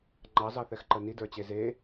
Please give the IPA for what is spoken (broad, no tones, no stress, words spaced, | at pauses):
ŋ͡ǃɑzɑθɛxǃə nidə˞t͡ɕe ze